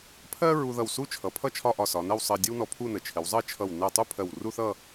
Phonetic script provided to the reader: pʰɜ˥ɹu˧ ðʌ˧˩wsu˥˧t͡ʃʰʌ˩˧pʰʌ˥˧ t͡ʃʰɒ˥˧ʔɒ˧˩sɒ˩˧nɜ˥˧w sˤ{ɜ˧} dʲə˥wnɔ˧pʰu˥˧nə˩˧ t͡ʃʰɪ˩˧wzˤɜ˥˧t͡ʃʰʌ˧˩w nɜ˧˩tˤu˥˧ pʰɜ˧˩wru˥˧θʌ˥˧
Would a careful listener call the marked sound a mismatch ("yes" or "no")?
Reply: no